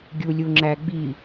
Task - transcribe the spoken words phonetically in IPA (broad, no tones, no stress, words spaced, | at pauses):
ɡʲulʲuŋ͡ǁæɡ͡bi